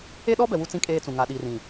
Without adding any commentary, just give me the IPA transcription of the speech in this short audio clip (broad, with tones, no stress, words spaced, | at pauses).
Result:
e˦ɗɔ˦bɛ˨ wu˦t͡sĩ˦˨kʼeː˦t͡sũ˨ ŋa˨ɗi˨rĩ˨